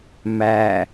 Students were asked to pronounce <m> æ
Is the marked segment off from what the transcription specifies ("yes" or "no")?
no